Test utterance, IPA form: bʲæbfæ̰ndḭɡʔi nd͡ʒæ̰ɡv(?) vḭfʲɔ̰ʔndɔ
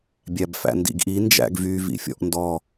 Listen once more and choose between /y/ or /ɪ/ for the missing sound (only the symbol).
y